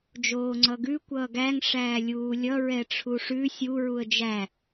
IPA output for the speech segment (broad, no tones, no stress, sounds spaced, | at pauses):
d͡ʒ oː ŋ͡ǀ ʌ ɡ ʉ kʷ ʌː ɡ æ ŋ ʂ æː lʲ uː lʲ ʌ ɹ ɛ ʈ͡ʂʰ u ʂ ʉ sʲ u ɹ u ə̯ d͡ʒ æ